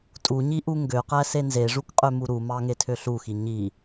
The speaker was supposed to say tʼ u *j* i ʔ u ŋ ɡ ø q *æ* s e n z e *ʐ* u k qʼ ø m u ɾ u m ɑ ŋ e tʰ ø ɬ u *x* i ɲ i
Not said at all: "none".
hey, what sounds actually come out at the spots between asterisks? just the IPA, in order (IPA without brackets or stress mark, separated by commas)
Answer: ɲ, æ, ʐ, x